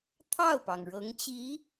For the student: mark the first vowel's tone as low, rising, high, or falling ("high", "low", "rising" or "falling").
falling